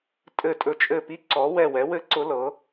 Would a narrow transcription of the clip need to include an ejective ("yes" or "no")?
yes